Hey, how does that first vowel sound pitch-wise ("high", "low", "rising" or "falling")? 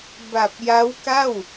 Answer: low